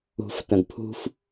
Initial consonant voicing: voiceless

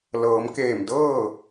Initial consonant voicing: voiced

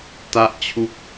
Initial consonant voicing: voiceless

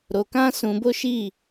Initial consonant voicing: voiced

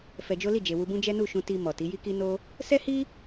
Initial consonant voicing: voiceless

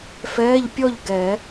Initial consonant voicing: voiceless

